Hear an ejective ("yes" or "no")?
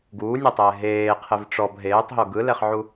no